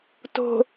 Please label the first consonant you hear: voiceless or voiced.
voiceless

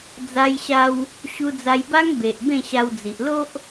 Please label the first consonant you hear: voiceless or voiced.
voiced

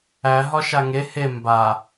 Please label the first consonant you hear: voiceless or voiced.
voiced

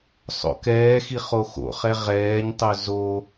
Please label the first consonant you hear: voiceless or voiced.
voiceless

